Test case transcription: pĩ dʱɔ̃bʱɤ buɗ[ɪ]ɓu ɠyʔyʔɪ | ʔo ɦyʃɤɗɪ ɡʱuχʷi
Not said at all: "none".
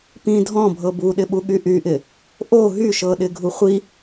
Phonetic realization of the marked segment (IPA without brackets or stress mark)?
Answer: ɪ